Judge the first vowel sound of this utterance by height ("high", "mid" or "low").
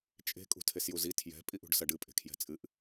mid